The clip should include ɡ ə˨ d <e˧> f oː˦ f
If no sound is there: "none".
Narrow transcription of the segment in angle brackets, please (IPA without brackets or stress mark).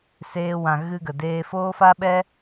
eː˧